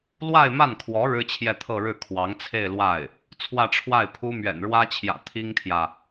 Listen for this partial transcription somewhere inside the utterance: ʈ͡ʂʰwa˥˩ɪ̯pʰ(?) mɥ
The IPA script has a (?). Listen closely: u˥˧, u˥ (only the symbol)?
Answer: u˥